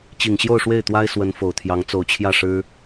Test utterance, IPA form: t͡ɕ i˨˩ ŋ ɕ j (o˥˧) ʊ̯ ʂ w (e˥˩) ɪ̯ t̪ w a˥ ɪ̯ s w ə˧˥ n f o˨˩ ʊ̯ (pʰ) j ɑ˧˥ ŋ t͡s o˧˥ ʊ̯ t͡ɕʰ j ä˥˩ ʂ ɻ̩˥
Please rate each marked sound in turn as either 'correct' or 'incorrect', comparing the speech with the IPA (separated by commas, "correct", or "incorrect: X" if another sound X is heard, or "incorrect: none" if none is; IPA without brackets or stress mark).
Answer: correct, correct, incorrect: t̪ʰ